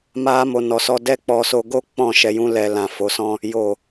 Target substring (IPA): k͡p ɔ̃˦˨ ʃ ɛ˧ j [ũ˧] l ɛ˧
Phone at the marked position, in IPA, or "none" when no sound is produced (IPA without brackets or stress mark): ũ˦